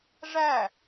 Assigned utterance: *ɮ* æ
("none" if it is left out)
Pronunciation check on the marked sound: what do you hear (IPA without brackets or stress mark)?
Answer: ʐ